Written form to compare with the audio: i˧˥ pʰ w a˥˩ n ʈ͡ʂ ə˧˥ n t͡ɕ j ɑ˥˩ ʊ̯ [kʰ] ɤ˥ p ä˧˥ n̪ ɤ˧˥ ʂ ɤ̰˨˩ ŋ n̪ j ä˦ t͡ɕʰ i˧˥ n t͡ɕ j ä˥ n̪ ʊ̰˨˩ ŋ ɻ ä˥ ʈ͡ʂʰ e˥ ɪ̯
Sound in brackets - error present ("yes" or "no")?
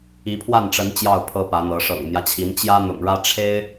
yes